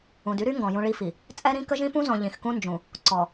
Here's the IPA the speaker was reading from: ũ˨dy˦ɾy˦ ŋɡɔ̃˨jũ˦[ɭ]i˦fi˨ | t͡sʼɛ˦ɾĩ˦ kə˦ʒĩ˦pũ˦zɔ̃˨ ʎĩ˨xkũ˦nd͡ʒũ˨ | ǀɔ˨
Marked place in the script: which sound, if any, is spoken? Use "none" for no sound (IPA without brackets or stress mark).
ɭ